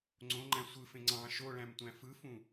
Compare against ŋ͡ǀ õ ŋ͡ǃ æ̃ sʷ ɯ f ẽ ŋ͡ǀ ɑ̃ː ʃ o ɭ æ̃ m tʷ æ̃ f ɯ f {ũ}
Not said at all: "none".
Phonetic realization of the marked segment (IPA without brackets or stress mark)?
ũ